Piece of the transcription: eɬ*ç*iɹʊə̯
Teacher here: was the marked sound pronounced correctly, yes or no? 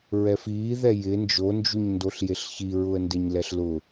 yes